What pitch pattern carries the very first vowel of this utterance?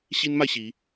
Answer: high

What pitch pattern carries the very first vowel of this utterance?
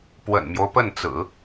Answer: low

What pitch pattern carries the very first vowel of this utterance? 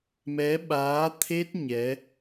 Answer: rising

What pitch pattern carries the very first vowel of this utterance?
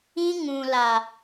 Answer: high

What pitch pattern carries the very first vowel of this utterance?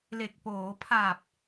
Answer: low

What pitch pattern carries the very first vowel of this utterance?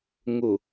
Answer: low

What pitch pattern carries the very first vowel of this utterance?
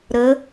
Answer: rising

